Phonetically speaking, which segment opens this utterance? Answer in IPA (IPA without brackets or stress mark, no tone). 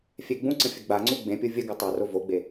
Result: fʲ